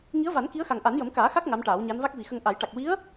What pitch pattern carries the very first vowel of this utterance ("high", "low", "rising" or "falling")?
rising